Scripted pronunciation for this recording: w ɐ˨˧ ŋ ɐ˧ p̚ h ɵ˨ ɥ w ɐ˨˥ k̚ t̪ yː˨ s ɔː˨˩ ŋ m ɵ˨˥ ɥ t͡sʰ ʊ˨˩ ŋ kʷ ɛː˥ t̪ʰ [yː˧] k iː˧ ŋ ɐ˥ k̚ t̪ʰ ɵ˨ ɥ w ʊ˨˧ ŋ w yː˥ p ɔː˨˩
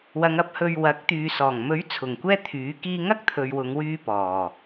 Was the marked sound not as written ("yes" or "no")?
yes